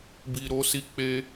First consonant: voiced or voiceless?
voiced